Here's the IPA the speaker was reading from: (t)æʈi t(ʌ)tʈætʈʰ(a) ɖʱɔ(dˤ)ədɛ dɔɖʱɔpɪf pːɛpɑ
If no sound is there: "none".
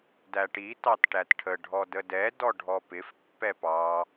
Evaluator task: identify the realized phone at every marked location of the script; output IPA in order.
d, ɑ, ə, d

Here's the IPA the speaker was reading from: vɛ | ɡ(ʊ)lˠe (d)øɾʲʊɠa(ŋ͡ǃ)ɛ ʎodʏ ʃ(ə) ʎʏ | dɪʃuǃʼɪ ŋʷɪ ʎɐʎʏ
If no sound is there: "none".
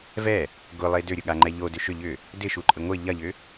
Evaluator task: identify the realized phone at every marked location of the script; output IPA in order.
ʊ, d, ŋ͡ǃ, ʏ

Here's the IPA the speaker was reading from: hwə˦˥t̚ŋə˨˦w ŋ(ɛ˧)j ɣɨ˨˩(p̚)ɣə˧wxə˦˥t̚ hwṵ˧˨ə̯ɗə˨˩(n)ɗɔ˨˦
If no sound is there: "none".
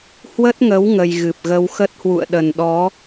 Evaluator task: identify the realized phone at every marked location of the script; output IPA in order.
ə˧, p̚, n

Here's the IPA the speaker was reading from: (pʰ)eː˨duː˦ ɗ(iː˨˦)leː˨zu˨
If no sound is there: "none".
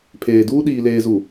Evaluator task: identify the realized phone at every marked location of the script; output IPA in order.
pʰ, iː˨

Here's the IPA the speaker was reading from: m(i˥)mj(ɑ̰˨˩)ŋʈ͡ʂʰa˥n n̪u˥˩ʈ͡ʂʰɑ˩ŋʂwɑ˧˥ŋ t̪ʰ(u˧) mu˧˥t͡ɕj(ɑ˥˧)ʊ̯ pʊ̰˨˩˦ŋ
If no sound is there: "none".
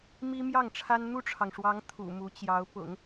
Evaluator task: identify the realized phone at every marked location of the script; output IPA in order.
i˥, ɑ˥˩, ṵ˨˩, ɑ˧˥

